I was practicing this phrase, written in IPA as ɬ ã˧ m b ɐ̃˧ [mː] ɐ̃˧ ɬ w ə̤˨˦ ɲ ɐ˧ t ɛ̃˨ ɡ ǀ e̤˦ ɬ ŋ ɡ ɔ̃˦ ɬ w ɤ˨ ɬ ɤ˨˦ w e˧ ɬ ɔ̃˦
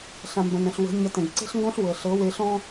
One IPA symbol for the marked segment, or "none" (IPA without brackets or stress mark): n